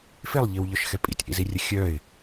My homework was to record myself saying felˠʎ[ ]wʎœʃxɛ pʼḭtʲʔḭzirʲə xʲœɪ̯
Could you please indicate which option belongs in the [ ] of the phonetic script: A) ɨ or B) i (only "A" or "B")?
B